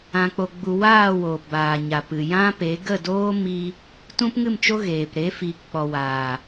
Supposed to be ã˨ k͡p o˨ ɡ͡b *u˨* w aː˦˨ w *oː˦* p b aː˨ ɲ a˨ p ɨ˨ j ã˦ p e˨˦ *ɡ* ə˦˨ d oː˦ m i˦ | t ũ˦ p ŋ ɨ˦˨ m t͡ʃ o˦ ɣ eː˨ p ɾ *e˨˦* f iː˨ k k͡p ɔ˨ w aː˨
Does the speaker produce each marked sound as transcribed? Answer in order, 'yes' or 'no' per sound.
yes, no, yes, yes

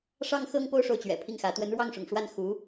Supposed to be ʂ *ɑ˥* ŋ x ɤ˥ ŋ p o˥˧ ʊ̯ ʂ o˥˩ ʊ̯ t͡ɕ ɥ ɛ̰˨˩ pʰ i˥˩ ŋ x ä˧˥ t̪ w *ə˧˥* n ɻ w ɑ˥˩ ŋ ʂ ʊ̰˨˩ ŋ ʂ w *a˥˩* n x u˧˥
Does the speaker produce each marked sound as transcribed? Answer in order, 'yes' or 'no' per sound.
yes, yes, yes

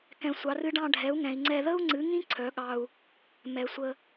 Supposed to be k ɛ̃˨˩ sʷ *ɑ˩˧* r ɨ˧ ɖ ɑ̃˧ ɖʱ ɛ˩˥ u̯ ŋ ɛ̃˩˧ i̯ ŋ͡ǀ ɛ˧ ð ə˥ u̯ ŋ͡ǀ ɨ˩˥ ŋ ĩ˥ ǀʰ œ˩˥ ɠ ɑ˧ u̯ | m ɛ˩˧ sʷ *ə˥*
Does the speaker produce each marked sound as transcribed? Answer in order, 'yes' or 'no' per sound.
yes, no

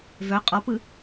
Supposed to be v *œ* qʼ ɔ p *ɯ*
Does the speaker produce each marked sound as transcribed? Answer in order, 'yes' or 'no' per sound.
yes, yes

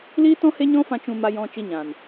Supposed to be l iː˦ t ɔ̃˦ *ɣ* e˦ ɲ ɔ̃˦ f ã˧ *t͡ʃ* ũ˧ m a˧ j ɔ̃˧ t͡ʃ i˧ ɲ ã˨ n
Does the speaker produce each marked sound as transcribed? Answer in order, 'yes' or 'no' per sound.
no, yes

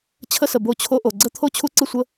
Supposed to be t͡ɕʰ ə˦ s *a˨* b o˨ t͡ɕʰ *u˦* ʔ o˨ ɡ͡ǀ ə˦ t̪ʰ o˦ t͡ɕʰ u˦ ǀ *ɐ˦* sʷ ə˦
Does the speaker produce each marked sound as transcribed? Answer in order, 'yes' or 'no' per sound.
no, no, no

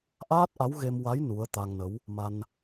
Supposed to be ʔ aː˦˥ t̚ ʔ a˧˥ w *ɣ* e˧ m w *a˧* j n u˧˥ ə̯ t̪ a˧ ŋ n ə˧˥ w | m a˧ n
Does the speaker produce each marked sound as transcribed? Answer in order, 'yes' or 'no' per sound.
yes, no

